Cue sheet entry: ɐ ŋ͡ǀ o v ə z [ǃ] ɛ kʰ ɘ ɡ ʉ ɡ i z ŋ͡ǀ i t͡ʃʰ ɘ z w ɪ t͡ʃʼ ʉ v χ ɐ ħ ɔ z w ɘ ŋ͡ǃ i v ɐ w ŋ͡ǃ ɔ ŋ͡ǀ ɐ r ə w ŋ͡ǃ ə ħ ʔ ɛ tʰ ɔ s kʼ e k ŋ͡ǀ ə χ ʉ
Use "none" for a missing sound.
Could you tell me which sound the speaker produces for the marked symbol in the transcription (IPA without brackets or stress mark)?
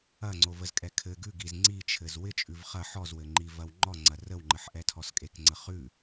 kʼ